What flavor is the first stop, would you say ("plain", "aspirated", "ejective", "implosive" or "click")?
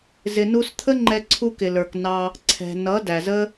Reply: aspirated